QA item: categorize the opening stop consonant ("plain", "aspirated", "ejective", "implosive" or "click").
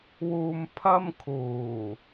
aspirated